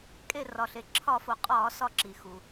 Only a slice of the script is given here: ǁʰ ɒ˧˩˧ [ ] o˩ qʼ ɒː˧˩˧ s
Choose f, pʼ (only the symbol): f